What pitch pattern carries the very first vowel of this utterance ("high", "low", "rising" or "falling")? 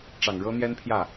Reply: low